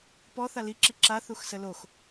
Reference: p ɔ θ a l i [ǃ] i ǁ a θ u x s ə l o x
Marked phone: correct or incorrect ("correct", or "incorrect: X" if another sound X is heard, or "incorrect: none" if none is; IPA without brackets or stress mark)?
incorrect: ǁ